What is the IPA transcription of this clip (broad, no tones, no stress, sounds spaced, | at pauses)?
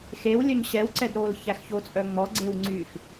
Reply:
x e w lʲ œ ɲ ɕ ɛ w ǀ ɛ d ɾ oː l ç æ x ç o t͡sʼ œ ŋ͡m ɔ ɡ͡ǀ e w ŋ͡ǀ yː x